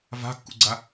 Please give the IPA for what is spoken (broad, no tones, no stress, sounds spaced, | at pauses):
v a̤ kː ṵ ɡ͡ǀ a